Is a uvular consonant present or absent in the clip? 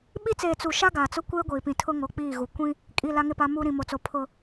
absent